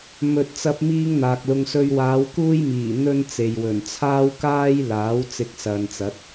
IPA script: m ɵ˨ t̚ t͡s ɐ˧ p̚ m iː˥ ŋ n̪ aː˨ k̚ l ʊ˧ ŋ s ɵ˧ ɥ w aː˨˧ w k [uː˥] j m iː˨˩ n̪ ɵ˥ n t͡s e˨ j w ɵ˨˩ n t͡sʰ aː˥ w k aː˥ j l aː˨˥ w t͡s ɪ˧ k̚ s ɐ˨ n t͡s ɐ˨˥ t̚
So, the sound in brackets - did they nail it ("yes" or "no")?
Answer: yes